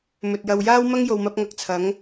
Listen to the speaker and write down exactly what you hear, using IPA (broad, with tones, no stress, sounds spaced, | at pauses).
m ɵ˨ t̚ j ɐ˧ w j aː˥ w m ɐ˥ ŋ j o˨ w m ɐ˨˥ p̚ ŋ ɐ˨ k̚ t͡sʰ ɐ˨˥ ŋ